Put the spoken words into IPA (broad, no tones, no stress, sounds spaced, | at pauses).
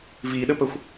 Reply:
v i ɗ ə p ə xʷ